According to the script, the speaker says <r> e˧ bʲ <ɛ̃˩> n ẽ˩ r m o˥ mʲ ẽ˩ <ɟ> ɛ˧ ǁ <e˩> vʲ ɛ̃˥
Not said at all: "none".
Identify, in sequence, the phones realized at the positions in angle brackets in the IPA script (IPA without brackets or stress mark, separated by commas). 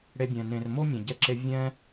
ɽ, ɛ̃˩, ɟ, e˧